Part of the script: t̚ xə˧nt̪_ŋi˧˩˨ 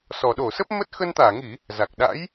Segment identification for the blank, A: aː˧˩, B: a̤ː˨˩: A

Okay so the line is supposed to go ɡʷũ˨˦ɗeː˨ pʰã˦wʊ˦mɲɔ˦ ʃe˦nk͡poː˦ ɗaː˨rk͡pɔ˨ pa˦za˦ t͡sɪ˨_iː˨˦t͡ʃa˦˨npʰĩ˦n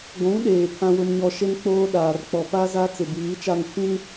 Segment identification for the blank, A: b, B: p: A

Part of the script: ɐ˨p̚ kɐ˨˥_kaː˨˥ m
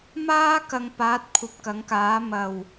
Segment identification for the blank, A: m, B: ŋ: B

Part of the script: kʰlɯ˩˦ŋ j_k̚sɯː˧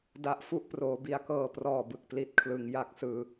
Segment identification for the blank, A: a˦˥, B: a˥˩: A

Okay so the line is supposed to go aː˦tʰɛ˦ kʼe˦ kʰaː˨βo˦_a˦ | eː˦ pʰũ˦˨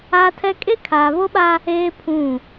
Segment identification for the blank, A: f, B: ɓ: B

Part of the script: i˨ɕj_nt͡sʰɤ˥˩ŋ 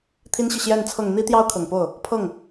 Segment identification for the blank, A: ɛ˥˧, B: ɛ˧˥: A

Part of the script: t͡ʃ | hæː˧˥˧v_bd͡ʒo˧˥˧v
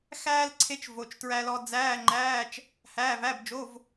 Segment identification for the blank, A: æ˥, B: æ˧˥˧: B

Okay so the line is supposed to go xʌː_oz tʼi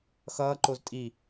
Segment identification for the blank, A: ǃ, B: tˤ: A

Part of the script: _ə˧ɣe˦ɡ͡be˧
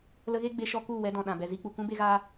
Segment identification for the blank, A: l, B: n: A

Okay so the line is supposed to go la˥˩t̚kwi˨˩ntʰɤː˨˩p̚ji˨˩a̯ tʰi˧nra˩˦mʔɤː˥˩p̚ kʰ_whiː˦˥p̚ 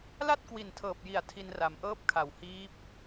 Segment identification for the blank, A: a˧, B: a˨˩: B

